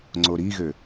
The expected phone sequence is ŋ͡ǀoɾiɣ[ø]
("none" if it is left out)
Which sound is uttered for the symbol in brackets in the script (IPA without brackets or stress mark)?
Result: ø